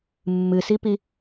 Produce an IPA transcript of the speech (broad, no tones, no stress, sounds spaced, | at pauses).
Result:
mː ɨ s i p i